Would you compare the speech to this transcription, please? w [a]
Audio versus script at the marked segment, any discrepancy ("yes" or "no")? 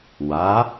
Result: no